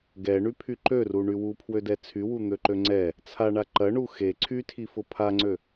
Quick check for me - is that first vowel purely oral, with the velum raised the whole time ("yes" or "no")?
yes